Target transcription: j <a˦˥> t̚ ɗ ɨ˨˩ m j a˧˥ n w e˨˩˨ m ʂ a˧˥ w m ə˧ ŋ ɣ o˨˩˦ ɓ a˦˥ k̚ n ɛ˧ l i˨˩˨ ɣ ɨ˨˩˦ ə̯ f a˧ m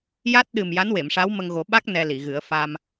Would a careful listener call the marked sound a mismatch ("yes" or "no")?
no